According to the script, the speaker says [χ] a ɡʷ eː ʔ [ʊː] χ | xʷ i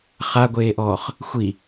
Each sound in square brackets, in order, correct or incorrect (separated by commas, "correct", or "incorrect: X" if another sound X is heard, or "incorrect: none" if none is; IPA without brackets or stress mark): correct, incorrect: ɔː